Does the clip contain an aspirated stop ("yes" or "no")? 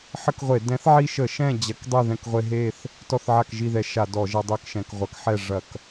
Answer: no